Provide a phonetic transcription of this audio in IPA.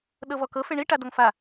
ɗ ɤ v ɔ k ɤ f e ɳ i ʈ a d ɔ ŋ f a

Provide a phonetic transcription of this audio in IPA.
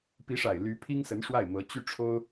p i˧˥ ʂ a˨˩ ɪ̯ l y˧˥ pʰ i˥ ŋ s ə˧˥ n ʂ w a˥˩ ɪ̯ m ɤ˧˥ t͡ɕ y˥ ʈ͡ʂʰ o˥ ʊ̯

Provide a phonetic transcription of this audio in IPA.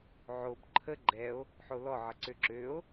ʕ o b ǃʰ ə ɡ͡ǃ ɛ o̯ | ħ o l ɔ ʕ ə ǀ ø ǁ ø o̯

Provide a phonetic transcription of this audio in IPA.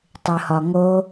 tˤ ɨ h ɒ ŋ o

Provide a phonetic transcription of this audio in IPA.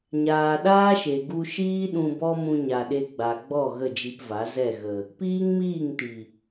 ɲ aː˨ ɗ aː˦ ʃ e˨ ɡ u˧ ʃ iː˦ ɗ ũ˧ b ɔ˦ m ũ˧ ɲ a˨ ɗ e˧ ɡ͡b a˨ ɡ͡b ɔ˦˨ ɣ ə˦˨ d͡ʒ i˧ p v a˨˦ z ɛ˦˨ ɣ ə˨ | p iː˦ ŋ m iː˦˨ ŋ t i˨

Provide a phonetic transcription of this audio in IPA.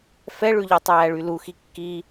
f ɛ ɭ ʉ ʎ ɛ tˤ æː ɭ y l u x i kː i

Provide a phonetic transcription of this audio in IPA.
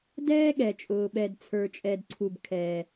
d ɛː˥ ɠ ɛ˩ t͡ʃʼ ʊː˩ ɓ ɛ˩ d t͡sʰ ə˞˩ t͡ʃʼ ɛ˩ d ǀʰ u˩ b kʰ ɛː˩

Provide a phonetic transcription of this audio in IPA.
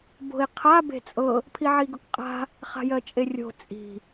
b o̤ i̯ qʰ a b e̤ t͡sʼ ɤ | pʰ i ʕ i ɡ ʊ k qʼ a̤ | χ a̤ j ɜ t͡ʃʼ e rʲ o̤ t͡sʼ i̤

